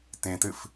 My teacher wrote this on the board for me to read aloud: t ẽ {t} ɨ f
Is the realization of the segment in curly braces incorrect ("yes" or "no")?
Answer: no